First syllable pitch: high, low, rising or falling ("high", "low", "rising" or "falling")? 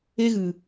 high